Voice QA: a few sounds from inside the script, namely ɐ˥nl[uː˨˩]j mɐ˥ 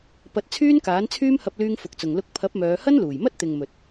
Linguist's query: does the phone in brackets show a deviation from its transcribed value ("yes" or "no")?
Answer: no